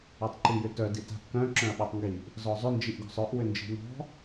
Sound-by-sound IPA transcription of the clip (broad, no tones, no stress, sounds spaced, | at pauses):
ɜ tˤ ǃ i j ʏ t œ d i t a̤ ʔ k œ̃ ǁ œ̃ ɐ̯ ɓ e tˤ ŋ ɡ i ʔ | z ɔ zˤ ʏ n d͡ʒ i ʔ ɡ ɔ̤ sˤ œ ʔ w ʏ n d͡ʒ i̤ n̪ ɔ̤